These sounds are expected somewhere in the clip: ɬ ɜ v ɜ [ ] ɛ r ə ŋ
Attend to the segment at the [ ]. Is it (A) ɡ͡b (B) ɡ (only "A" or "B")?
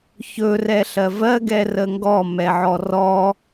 B